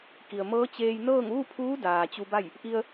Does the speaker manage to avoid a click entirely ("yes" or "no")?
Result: yes